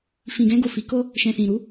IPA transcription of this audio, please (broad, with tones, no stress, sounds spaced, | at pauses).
f ĩ˨ ɡ ɛ̃˧ ɡ o˨ f i˨˦ k o˦ | ʃ ɛ̃˨ s ĩ˨ ɾ u˨˦